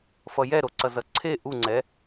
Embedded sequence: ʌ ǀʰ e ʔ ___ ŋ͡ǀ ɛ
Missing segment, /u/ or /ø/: u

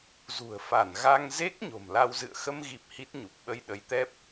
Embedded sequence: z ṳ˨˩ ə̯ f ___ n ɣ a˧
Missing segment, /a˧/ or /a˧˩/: a˧˩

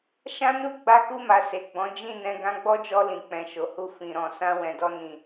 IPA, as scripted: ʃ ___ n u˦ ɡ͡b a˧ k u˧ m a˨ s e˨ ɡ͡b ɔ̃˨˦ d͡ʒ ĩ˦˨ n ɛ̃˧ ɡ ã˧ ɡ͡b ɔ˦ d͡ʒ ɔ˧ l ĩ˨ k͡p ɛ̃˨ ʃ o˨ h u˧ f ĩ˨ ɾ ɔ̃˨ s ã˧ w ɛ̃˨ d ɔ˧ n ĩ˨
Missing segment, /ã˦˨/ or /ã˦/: ã˦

